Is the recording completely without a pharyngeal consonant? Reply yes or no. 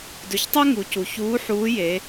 no